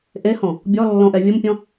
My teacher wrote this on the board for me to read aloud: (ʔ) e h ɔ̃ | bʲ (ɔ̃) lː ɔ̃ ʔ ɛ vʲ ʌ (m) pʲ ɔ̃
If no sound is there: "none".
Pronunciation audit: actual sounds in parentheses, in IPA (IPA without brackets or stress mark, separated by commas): ʔ, ɔ, m